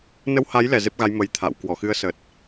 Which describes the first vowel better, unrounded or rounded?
unrounded